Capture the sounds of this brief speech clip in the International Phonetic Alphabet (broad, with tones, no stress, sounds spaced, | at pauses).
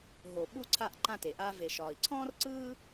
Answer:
ɦ o˩ ɓ u˧ ǀʰ a˧ ʔ ǃ ã˧ t e˩ ʔ aː˧ v e˩ ʃ ɒː˩ i̯ ǀʰ ɔ̃ː˥ r ǀ ɯː˥